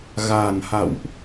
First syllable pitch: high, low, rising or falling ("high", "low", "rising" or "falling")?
low